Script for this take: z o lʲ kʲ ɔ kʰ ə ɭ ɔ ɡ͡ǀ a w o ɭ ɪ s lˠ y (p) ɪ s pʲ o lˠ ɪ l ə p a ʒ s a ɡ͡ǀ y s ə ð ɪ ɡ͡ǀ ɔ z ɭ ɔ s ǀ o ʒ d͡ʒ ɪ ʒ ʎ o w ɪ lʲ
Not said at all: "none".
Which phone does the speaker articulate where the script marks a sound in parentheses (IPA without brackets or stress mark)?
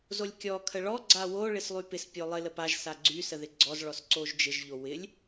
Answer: p